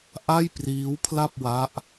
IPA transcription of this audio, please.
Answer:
ʔ a˥˩ j p r iː˦˥ w pʰ l a˥˩ p̚ w a˦˥ ʔ

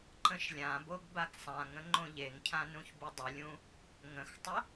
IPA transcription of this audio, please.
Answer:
ǃ ə̃ ʃ lʲ ã b o ɡ b a ɡ sˤ ã ŋ ə̃ ŋ͡ǃ õ ʎ e ŋ cʰ ã n ũ ç b u dˤ ə lʲ ũ | ŋ ə̃ x tˤ ə

